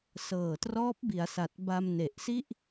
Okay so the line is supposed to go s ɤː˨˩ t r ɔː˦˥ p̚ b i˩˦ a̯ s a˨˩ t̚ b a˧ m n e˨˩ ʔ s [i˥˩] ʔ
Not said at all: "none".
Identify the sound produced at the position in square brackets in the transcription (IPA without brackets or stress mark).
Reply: i˥˩